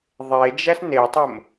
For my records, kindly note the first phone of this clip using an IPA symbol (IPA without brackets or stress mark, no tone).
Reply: ðˤ